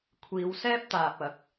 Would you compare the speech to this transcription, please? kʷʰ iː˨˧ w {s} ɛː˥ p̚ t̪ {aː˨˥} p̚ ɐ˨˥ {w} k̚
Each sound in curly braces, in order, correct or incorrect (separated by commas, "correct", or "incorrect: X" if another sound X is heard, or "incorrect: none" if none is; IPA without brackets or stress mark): correct, incorrect: aː˨, incorrect: none